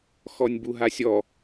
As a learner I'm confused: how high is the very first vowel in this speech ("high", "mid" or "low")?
mid